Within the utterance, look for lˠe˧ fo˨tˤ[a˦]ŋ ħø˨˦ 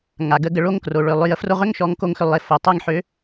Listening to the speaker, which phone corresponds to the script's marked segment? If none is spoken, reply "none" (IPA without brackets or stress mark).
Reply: a˦